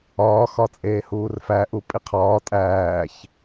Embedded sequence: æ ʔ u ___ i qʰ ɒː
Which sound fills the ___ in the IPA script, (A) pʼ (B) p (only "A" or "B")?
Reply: A